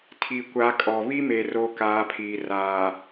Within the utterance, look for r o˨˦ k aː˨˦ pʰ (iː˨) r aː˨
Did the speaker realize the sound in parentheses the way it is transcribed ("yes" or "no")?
yes